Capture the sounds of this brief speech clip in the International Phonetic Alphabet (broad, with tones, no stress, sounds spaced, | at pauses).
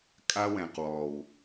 kʼ a˦ w ɛ̃˨ q w ɔ˨ w